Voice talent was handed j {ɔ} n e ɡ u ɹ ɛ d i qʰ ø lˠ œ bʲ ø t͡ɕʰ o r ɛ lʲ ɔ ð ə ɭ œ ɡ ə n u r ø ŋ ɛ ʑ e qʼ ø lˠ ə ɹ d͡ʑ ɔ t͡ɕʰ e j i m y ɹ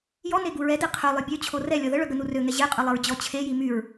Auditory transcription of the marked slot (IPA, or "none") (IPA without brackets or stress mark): ɔ